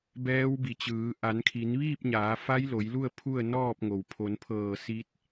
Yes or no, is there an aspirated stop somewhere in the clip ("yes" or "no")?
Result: yes